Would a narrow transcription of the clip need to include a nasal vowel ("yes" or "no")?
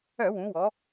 yes